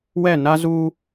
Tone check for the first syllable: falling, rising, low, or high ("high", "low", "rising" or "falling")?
falling